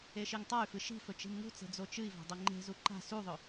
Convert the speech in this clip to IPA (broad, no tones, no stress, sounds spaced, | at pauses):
e ʃ i ŋ tˤ a y̯ f ɨ ʃ i̤ f ɵ t͡ʃ i̤ m ŋ ṳ t͡s e̤ d͡z o t͡ʃ ɨ i̯ v a̤ dˤ o ŋ͡ǃ e̤ z u ǃ a̤ s u ðˤ ɵ